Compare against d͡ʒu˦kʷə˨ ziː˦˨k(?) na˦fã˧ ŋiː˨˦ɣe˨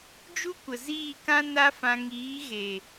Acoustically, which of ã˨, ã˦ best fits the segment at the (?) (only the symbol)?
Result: ã˦